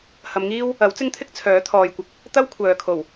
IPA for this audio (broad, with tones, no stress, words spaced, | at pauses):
hɐ˨˧mŋiː˥w | ɐ˨˥wt͡sɪ˥ŋt̪ʰɪ˥k̚ t͡sʰœː˨˥t̪ʰɔː˨jkʷɪ˨k̚ | t̪ɐ˥w kʷʰœː˨kʰo˨˩w